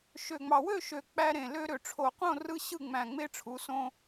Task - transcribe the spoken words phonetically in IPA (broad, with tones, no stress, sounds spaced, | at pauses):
ʃ ø˨˩ ŋ͡m ɑ˨˩ w ø˥˨ ʃ ø˨˩ k͡p æ˧ ɾ ẽ˨˩ l ø˧ ɾ ø˨˩ ʈ͡ʂʰ o˨˩ q õ˥˨ r ɯ˧ ɕ ɯ˥˨ ŋ͡m æ̃˨˩ ŋ͡m e˧ ʈ͡ʂʰ u˩˧ s õ˧